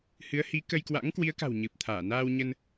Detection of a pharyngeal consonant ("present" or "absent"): absent